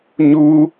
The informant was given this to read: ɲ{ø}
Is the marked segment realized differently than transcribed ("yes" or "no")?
yes